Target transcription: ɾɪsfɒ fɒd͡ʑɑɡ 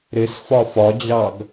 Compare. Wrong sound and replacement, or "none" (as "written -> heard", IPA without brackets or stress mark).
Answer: none